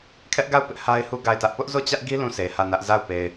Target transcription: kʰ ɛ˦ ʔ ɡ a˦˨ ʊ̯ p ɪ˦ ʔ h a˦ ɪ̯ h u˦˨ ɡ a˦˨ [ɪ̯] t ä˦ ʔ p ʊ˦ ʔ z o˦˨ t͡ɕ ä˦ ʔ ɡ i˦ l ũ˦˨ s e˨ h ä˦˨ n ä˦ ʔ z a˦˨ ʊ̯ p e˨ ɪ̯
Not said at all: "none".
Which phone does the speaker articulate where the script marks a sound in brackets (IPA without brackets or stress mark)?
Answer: ɪ̯